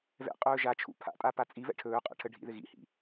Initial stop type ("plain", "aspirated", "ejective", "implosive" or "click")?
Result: ejective